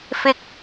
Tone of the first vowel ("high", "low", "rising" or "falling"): high